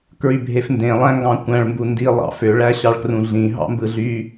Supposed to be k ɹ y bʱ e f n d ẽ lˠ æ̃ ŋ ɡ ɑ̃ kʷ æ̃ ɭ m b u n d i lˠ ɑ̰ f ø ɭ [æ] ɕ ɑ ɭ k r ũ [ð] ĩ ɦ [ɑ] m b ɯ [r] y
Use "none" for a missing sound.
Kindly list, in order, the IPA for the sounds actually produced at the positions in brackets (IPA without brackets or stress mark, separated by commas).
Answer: æ, ɮ, ɑ̰, ɮ